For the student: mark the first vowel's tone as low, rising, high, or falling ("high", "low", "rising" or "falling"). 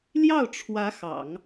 falling